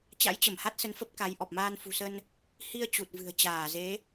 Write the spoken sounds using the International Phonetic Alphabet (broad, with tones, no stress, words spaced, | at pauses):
t͡ɕa̰˧˥jt͡ɕə˧˩mha˦˥t̚sə˨˦n fə˦˥p̚ka˨˦j ʔɔ˨˩p̚maː˧nfṳ˨˩sə˧n | hi˧ə̯ t͡ɕu˨˩t̚vɨ̤˨˩ə̯t͡ɕaː˧˩ ze˨˦